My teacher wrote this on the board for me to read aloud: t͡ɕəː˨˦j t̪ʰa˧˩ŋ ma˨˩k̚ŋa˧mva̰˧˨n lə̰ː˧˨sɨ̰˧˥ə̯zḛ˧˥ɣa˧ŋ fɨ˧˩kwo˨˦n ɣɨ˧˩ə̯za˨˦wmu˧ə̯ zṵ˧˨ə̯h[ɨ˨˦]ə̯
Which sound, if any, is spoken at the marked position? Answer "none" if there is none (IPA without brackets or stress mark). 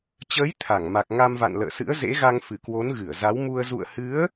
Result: ɨ˨˦